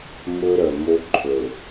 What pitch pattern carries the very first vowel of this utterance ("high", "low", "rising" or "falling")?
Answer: high